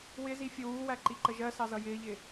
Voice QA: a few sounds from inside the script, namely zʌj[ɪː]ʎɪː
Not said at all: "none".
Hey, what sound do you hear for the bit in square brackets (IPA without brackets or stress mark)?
ɪː